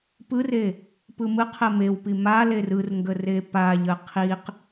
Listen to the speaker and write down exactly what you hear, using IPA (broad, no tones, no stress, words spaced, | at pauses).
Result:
pɯre | pɯmɯqʰə mewpi ma lerɯrŋɡə repaʎə qʰiq